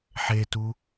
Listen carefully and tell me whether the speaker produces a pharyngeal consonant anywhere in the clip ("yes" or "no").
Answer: yes